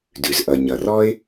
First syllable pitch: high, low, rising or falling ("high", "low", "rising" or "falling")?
low